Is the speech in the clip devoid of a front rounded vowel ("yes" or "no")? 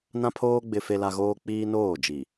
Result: yes